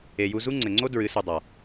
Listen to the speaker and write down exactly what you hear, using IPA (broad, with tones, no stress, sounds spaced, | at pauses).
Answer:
e˨ j u˧ z u˦ ŋ͡ǀ ɘ˨ ŋ͡ǀ o˦ d ɹ ɨ˨˦ s u˨ dˤ a˨